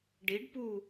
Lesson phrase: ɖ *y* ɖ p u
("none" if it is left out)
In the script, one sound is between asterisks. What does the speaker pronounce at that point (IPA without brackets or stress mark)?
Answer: i